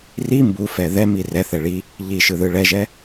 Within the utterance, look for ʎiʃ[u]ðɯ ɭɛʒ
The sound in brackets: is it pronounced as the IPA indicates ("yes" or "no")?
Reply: no